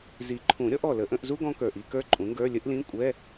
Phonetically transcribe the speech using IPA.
zi˨˩˦ǃʰũ˨˩˦ɾʲɔ˩˥ʔɔ˨˩ lə˨˩˦ʔə̃˧˥˧ʔzu˥ ɡɔ̃˥kə˞˨˩ʔ i˧˥˧kə˞˥ǃʼũ˩˥ŋɡə˞˧˥˧ lʲə˥ʔlĩ˧˥˧ kʷʼɛ˧˥˧

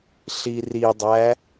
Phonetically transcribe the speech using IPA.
ɬiridˤæ

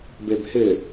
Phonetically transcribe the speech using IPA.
bebhɪ

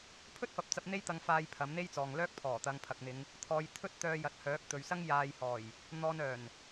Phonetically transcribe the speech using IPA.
pʰɵ˥t̚fɐ˨˥p̚t͡sɐ˧p̚ n̪e˥jt̪ɐ˧ŋfaː˧j pʰɐ˨˥mn̪e˥jt͡sɔː˨ŋlœː˥k̚ pʰɔː˨˩t̪ɐ˨˧ŋpʰɐ˨k̚n̪ɪ˨˧ŋ | t̪ʰɔː˧j t̪ʰɵ˥t̚ t̪œː˧ jɐ˨˥t̚hœː˨˥k̚t̪ɵ˨ɥsɐ˥ŋ jaː˧jhɔː˨˩j | n̪ɔː˧nœː˨˩n

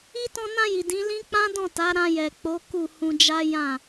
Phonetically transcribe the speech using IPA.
i˦ tɔ̃˧nã˧ji˨ dĩ˨˦lĩ˦ k͡pã˦dɔ̃˦˨ta˨˦ ɾã˧jɛ˨k͡po˨˦ ku˦˨hũ˧ d͡ʒa˦jã˦˨

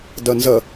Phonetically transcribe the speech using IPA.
dʌnzʌ

